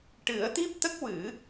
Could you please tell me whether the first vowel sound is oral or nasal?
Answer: oral